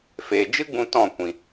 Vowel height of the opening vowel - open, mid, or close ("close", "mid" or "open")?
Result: mid